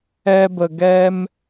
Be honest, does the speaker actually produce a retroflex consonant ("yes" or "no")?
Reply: no